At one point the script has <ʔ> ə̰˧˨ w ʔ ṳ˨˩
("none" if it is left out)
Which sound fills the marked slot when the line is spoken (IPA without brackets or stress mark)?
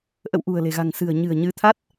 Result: ʔ